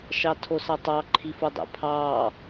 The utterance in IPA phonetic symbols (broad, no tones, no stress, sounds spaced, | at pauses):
ʃ ɑ tʰ o s ɑ tˤ ɑ ǃʰ i f o dˤ æ̰ pʰ ɑː